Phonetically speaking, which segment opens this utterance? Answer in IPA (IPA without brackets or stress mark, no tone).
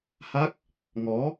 h